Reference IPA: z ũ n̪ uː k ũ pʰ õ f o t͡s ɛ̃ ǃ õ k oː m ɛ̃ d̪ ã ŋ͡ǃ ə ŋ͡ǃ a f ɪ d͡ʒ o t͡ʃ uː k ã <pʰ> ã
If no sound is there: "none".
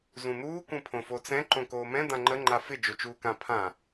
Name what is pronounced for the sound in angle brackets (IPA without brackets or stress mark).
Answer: pʰ